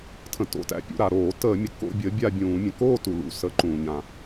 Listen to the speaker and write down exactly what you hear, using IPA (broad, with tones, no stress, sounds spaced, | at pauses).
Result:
tʰ ə̃˩ t o̰˩˧˩ t æ̰˨˦ pʲ ṵ˩˧˩ ɾ a˩ ɾ oː˧˩˧ t əː˧˩˧ mʲ ə˩ k o̰˥˧ bʲ ə˨˦ bʲ a˥˧ bʲ ũː˧˩˧ mʲ ə̃˩ k oː˥˧ t u˩ l ṵ˩˧˩ s ə˨˦ ǃ ũː˩ ɲ ã˩